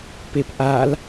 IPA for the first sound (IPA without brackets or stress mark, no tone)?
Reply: p